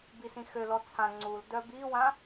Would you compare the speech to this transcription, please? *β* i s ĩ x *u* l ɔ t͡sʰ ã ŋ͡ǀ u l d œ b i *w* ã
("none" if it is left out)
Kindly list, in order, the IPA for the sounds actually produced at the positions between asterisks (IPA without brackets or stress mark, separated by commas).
b, ø, w